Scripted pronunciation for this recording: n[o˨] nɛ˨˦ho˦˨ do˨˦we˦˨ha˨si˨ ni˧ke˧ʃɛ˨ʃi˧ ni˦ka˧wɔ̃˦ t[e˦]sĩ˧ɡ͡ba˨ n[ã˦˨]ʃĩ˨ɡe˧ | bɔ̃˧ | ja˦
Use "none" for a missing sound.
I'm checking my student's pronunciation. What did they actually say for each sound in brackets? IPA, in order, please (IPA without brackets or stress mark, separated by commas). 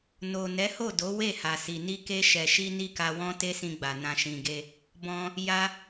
o˨, e˦, ã˨